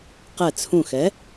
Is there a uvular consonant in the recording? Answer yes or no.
yes